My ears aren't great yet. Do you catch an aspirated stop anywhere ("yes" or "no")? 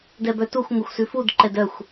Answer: no